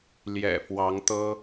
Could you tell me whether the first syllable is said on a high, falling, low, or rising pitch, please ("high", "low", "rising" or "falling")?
low